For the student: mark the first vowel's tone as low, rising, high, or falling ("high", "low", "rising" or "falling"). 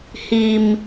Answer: low